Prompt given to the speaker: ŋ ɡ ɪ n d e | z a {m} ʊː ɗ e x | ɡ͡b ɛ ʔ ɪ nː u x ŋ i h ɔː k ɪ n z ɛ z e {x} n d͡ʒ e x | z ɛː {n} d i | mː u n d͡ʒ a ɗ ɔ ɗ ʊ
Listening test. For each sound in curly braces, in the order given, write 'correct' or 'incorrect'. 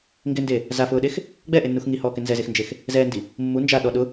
incorrect: f, correct, correct

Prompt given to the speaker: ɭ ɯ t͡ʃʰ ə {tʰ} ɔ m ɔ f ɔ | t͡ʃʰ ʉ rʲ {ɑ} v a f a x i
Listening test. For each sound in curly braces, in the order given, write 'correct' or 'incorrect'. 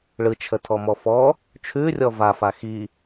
correct, incorrect: ɔ

